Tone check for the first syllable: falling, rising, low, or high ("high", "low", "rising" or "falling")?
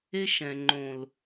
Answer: high